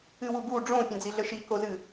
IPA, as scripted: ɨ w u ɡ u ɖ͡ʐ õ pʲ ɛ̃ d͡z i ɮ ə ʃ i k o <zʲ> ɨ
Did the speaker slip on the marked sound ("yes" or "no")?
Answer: yes